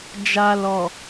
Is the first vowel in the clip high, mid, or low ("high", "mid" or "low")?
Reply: low